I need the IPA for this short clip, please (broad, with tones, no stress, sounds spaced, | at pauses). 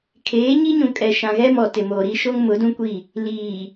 kʰ eː˨˦ ɲ i˦ ɲ ũ˨ kʼ ɛ˨ ʃ ã˨ ɣ ɛ˦ m ɔ˨ t ɪ˨ m oː˨ ɾ i˦ ʃ o˦ ŋ m ʊ˨˦ d ũ˦ kʷ i˦˨ | l iː˨